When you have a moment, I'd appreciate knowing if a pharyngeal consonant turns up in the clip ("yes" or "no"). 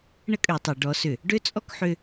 yes